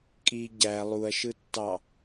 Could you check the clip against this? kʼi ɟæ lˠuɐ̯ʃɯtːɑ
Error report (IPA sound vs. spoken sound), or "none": none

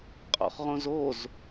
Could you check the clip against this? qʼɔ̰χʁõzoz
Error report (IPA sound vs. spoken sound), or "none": none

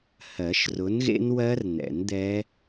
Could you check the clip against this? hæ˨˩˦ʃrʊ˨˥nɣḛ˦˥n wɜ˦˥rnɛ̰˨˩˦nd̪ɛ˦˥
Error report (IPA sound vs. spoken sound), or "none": æ˨˩˦ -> ɜ˨˩˦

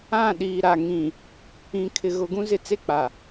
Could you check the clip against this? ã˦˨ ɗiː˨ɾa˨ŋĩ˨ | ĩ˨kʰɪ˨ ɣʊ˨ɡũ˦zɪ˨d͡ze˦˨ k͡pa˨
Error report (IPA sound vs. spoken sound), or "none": d͡z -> t͡s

